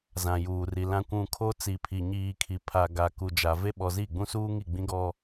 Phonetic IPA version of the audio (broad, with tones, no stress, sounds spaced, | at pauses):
z ã˨ j uː˨ r i˨ l ã˨ kʷ ũ˨ kʰ o˦ t͡s i˨ pʰ i˨ ɲ iː˨ kʰ i˨ pʰ a˨ ɡ a˨ k u˨ d͡ʒ a˨ v e˦ ɓ ɔ˨ z i˦˨ ɡ͡b ũ˦ s uː˦ ŋ i˦˨ ɡ͡b ĩ˦ ɡ ɔ˦